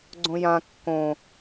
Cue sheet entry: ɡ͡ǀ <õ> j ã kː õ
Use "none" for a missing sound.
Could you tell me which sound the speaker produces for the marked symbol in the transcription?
õ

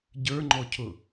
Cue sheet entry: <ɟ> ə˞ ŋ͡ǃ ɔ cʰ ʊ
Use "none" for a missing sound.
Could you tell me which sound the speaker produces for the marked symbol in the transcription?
ɟ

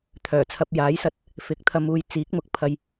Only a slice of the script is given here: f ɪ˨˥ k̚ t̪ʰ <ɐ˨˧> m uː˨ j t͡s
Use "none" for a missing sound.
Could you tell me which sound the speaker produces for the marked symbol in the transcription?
ɐ˨˧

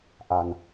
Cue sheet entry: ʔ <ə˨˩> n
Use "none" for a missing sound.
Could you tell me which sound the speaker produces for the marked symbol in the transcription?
a˨˩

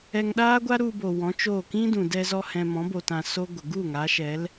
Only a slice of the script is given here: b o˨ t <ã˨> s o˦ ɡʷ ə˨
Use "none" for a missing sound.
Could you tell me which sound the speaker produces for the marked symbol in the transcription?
ã˨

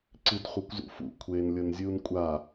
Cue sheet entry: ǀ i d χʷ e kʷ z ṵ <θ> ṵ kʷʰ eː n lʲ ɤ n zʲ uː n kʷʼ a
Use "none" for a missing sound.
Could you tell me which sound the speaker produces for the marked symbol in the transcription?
f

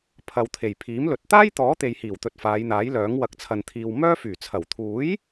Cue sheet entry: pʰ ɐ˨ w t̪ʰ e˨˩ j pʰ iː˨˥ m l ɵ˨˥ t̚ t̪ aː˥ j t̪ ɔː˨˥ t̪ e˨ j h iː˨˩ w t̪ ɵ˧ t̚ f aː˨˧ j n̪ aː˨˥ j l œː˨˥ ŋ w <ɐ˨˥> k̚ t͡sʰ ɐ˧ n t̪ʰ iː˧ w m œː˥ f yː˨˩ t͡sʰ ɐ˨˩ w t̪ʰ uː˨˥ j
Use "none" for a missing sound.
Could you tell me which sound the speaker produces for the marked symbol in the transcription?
ɐ˧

